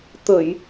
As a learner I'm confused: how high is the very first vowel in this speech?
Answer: mid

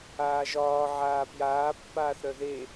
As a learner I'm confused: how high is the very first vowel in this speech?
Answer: low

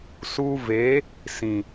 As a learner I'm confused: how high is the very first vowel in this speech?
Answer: high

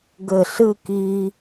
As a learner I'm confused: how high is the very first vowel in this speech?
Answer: mid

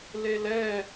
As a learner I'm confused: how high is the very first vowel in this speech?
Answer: mid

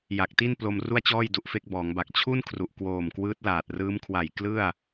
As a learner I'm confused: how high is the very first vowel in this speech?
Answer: low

